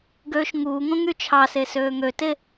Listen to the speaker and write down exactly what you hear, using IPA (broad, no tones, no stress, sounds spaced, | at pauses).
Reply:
ɡ øː ʃ ŋ uː ŋ õ ŋ y t͡ʃʰ ɑ s e s øː ŋ ø t e